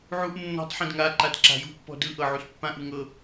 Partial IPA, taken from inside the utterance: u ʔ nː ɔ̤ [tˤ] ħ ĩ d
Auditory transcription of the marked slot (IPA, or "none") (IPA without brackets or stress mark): tˤ